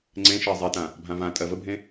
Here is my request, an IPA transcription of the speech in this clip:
ŋ͡ǀ ẽ ʃ e zˤ i t ã | bʱ ã v ã tʼ ɜ v ə bʱ ẽ

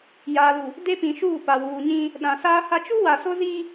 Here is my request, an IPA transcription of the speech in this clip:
j aː˨ l u˨ | d e˦ p ĩ˨ ʃ uː˦˨ p a˨ w uː˨ ɲ ĩ˦ | ɗ ã˨ s aː˦ h a˦ t͡ʃ u˦ w a˨ s o˦ z i˦

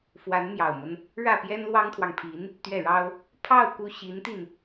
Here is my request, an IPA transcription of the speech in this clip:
f w a˧˥ n m j ɑ˨˩ ʊ̯ m ə˦ n | ɻ ä˥˩ p j ɛ˥ n l w ɑ˥ ŋ t̪ʰ w ɑ˨ ŋ pʰ i˧˥ n | t̪ ɥ ɛ˥˩ ɻ ɑ˥ ʊ̯ | pʰ ɑ˥˩ ʊ̯ k u˥ ɕ i˧˥ n t̪ i˧ n

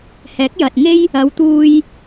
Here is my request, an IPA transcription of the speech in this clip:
h ɛː˨˥ k̚ j ɐ˨ t̚ ŋ e˥ j | ɐ˨˧ w t̪ uː˧ j

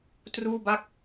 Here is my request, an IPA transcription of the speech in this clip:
t r uː˥˩ b a˥˩ k̚

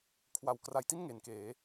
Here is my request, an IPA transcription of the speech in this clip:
kʰ w a˨˩ w k r a˨˩ j t i˥˩ n ŋ e˩˦ n k eː˩˦

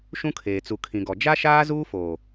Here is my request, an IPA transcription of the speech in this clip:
ʃ ũ˦ kʰ eː˨ t͡s u˨ kʰ ĩ˨ ɡ ɔ˨ d͡ʒ a˦ ʃ aː˦ z uː˦ f oː˨

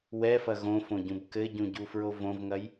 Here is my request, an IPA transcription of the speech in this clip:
w ɛ f ɐ ɣ õ f õ ɟ ũ b k ɘ ɟ ũ ɟ u f ɹ o v õ v ŋ ɐ j

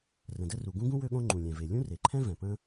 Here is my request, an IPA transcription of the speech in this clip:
r ə̃˩ d ə˥ r u˩ ɡ ũ˥ ɡ ũ˥ w ø˥ ɠ õ˥ ŋ͡ǃ ũ˩ lʲ ɛ̃˩ v e˩ lʲ ũ˥ r e˩ ǃʰ ɛ̃˥ v ɛ̃˩ p ə̃˥

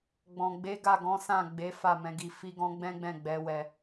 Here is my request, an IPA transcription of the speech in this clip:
ɡ͡b ɔ̃˨ ɡ͡b e˨˦ ɡ a˦˨ ɡ ɔ̃˨˦ s ã˦˨ ɡ͡b e˨˦ f a˦˨ m ɛ̃˨˦ ɡ i˧ f i˦ ɡ ɔ̃˦ ɡ͡b ɛ̃˦ ɡ͡b ɛ̃˦˨ ɡ͡b ɛ˨˦ w ɛ˧

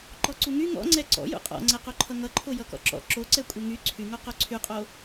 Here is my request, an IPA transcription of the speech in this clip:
ǃ ɔ ǀ u ŋ y ŋ ɔ̰ ŋ͡ǀ ɛ ǀ ɔ̰ j ṵ qʼ ɔ̰ ŋ͡ǀ ɛ q o ǃʰ ʌ ŋ ʌ ǃʰ o j ʌ k ɔ̰ ǁ ɔ̰ ǁ o ǀ ɛ kʷʼ ɛ ŋ y ǀʰ y ŋ o q o ǀʰ y qʼ o

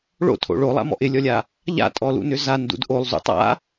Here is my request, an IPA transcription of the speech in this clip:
ɭ o̰ tʰ o̰ ɭ o lˠ a̰ m ɔ̰ ʔ ɪ lʲ ɔ lʲ a | ʎ a̰ tʼ ɔ l ṵ n ʏ z a n d ṵ d ʔ o lˠ z ṵ tˤ a̰

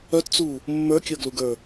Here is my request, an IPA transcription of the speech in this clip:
œ t t͡s u | mː ə˞ kʲ ɤ ɡ l u ɡ ə˞

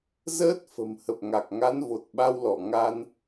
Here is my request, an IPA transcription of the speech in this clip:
z əː˦˥ t̚ f ə̤˨˩ m h ə˨˩ p̚ ŋ a˨˩ k̚ ŋ a˨˦ n v o˨˩ t̚ ɓ a˧ w l ɔ˧˩ ŋ a˧ n

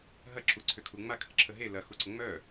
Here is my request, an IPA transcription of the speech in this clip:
ɦ ɐ ǁ u ǀʰ ʏ kʰ u ŋ͡m a kʰ ə ǁʰ ə ɦ e l ɐ x u ǀ ʊ ŋ͡m œ

